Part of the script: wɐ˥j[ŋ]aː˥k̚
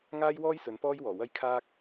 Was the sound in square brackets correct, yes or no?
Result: no